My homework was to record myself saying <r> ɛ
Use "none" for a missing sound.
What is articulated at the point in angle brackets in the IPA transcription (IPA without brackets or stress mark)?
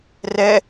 r